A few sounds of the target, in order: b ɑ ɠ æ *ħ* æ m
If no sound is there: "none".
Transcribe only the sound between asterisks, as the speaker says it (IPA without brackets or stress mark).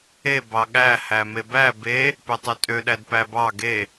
h